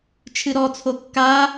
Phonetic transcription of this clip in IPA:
t͡ʃʰɨɾɔt͡sʰo kːa

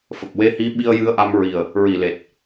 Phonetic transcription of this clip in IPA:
fə˨˩k̚we˧˥hi˧˥ ɓi˧ə̯jɨ˧ə̯ʔa˧m ɹi˨˩ə̯ | ɹi˨˩le˨˩t̚

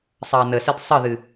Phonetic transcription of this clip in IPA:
sˤɐːnəsɘd sˤəðɨ

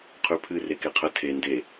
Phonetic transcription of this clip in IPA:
qʰʉpʰɨ rekeqʰə tʰe nde

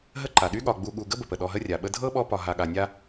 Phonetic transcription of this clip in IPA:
ɦə˦ǃa˩ɗy˦ɠɒ˨ ɡ͡bu˨ɠu˨ ɡə˥bə˨pə˩ ɗɔ˨ɦə˦rʲa˩ ɓə˦ dʱɤ˥ɓɔ˦ pɒ˨ ɦa˨ɠa˨nʲa˦

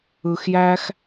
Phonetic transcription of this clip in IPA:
ɯ˨xjæ˧x

